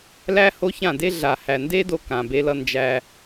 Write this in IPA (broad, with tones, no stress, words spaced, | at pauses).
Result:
læ˦ ho˦çã˦˨de˦ ɮa˨hæ˨nde˦ do˧kã˨be˧lʌ˧ nd͡ʒæ˧